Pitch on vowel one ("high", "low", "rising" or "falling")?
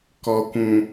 low